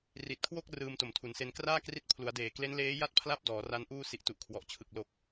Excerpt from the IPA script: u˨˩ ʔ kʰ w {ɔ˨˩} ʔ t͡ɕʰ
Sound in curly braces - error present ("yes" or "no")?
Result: no